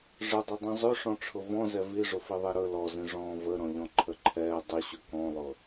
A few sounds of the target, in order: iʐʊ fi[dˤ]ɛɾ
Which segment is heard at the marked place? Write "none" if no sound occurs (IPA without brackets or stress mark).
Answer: ðˤ